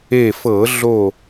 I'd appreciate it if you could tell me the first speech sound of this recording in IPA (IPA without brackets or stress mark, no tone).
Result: e